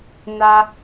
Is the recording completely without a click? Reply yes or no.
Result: yes